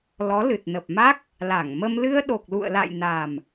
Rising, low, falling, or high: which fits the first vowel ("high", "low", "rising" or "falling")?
rising